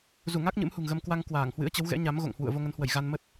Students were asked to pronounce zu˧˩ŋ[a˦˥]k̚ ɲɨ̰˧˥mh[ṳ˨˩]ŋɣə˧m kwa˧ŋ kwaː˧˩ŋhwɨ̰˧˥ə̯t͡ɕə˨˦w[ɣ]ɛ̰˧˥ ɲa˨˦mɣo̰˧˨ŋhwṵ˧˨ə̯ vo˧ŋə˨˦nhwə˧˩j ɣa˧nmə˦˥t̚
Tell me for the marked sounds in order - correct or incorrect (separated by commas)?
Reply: correct, correct, correct